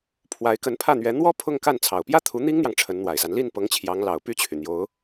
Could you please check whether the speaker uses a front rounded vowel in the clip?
yes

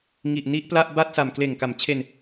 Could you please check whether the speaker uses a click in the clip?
no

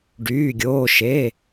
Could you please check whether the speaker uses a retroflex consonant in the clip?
yes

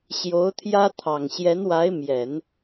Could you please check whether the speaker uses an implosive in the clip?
no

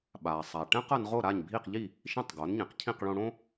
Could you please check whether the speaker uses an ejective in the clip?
no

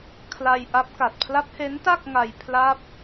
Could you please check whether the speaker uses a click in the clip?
no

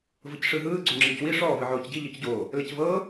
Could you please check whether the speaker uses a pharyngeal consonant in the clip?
yes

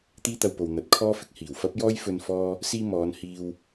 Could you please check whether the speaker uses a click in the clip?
no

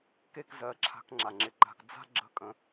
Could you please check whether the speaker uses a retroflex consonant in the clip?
no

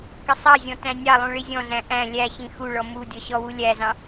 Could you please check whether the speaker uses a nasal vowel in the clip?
yes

